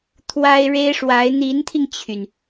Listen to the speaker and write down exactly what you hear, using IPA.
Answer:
t̪ʰ w a˥ ɪ̯ ɻ e˥ ɪ̯ ʂ w a˧˥ ɪ̯ n̪ i˧˥ n t̪ʰ i˧ ŋ t͡ɕʰ y˩ n

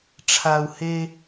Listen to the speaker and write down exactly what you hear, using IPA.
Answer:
ʈ͡ʂʰ a˨ u̯ h e˧

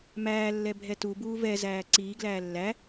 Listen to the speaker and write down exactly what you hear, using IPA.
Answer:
m æː lː ɛ bʱ ɛ t u b uː v ɛ z æː ǀ iː ɡ l æː lː æ

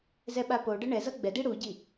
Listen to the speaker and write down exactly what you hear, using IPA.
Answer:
z ɛ ɓ a p o ɖ ʌ ɳ ɛ z ʌ ɡ͡b ɛ d i ɽ u ɟ i

